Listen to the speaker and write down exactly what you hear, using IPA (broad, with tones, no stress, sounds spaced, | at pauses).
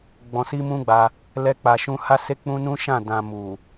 ɡ͡b ɔ̃˧ s i˦ m ũ˦ ɡ͡b a˧ | l ɛ˧ k͡p a˨ ʃ ũ˧ h a˦ s e˦ k͡p ũ˦ n ũ˦ ʃ ã˦˨ d ã˨ m u˨